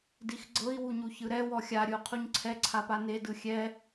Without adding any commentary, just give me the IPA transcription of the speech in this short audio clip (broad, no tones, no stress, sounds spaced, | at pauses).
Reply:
d i x ɡ͡ǀ ɤ i̯ w u ɲ u ç ɯ ɾ ɛ w ɔ xʲ a ɾʲ ɯ u̯ qʰ u ɲ ǀʰ ɛ ǀʰ a p a n e d ɯ xʲ ɛ